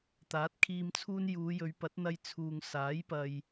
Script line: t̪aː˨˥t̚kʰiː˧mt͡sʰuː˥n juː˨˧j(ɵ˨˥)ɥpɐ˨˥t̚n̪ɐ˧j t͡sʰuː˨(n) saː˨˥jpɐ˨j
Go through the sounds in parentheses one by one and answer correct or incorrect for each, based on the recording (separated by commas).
incorrect, incorrect